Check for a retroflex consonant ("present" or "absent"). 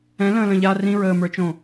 absent